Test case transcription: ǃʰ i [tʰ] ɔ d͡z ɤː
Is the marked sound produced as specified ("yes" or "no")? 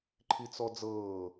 no